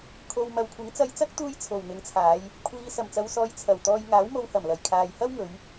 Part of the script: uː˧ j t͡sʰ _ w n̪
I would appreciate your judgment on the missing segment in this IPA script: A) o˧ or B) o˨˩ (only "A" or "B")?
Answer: B